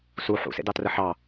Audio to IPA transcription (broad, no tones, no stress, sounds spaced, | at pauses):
s u ħ ṵ s ḛ d ɑ t r ə ħ ɑ